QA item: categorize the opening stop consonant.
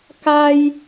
plain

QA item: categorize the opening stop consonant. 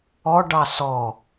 plain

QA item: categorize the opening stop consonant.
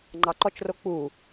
click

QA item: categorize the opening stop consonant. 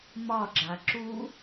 click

